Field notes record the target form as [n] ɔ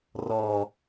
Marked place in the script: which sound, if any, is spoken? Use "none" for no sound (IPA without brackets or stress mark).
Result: r